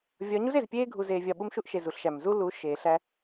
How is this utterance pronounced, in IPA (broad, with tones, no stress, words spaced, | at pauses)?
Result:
vʲɒ˨˦ɲu˦ze˨z pʲeː˦ɡʱu˨zeː˨vʲɒ˨ ɓu˦mʃu˦ʔ ʃe˨ zu˨ɬʃæ˨m zuː˦lu˨˦ ʃeː˨ɬæ˦